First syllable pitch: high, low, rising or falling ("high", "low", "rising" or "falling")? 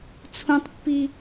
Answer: high